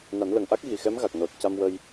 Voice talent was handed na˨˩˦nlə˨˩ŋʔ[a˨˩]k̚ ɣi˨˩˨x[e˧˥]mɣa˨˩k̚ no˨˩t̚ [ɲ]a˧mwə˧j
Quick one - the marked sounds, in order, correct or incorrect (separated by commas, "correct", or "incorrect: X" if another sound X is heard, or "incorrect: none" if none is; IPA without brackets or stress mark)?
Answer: incorrect: a˦˥, incorrect: ɛ˧˥, incorrect: c